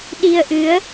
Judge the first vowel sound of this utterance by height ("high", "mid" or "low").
high